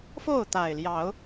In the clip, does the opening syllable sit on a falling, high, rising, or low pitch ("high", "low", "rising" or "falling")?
falling